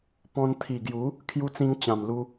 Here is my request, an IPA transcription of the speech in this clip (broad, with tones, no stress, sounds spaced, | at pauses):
p ɔ̃˧ n t̪ʰ i˨˩ ɡ j u˨˦ | kʰ j u˧ t͡s ĩ˧ ŋ t͡ɕ ã˨˩ m l u˧